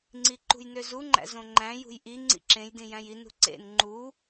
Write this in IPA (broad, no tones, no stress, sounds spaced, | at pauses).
ŋ͡ǀ i ǃ ṳ j n ø z u ŋ͡ǃ æ̰ z õ ŋ͡ǃ æ̃ j ṳ j ʔ i ŋ͡ǀ ḭ ǁ ẽ j d ĩ j æ̃ j i n ṳ ǀ ḛ n ŋ͡ǃ u